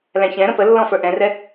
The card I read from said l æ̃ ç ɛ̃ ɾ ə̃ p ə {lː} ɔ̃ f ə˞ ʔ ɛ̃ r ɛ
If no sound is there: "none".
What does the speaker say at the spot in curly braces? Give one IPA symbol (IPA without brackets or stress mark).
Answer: lː